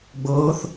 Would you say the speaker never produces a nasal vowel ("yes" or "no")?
yes